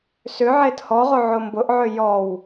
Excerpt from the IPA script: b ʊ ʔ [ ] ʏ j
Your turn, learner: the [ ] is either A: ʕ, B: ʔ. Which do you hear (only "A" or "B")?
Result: A